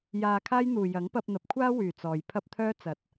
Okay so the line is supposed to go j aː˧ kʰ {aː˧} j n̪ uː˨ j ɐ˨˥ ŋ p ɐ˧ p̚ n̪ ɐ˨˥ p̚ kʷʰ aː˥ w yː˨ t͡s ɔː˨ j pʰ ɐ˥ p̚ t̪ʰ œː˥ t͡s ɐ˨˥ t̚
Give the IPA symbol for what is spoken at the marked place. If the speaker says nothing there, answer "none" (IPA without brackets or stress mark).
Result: aː˥